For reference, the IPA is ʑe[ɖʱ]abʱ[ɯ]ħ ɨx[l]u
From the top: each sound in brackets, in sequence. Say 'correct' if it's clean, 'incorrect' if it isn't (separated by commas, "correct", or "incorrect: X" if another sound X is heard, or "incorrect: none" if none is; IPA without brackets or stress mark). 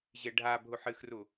correct, incorrect: u, incorrect: r